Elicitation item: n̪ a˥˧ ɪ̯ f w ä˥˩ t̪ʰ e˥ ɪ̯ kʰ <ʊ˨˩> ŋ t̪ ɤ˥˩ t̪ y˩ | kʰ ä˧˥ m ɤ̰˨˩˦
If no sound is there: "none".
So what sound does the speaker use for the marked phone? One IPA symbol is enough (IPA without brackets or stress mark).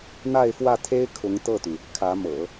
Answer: ʊ˧˥